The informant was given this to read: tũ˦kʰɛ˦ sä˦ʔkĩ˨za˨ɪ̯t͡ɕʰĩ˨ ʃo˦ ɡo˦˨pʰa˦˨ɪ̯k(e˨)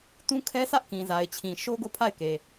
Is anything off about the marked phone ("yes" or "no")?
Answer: no